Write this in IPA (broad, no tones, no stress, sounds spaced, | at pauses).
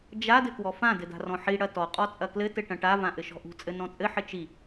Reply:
d͡ʒ a d ɘ k w ɔ f ã d ɘ d a̤ r ɔ̃ ħ i ɽ ɐ t ɔ qʼ ɔ t͡sʼ ɐ k l ɘ t ɘ ʈ ɐ̃ ʈ a v ã ʔ ɘ ʃ ɔ̤ ʔ ṳ t͡sʼ ɘ n ɔ̃ t͡sʼ ɘ ħ ɘ t͡ʃ i